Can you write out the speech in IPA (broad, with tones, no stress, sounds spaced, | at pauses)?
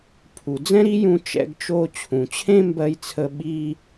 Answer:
pʰ u˩ d͡z ɛ̃˥ ɾ i˥ j ũ˧ t͡ʃ ɛ̰˧ ɡ t͡ʃ o˧ t͡ɕʰ ũ˩ t͡ɕʰ ẽ˥ m b ɜ˧ j t͡sʰ ə˧ ɓ i˥